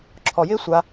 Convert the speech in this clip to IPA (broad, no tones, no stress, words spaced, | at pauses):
ǁʰɔjɪː sʷa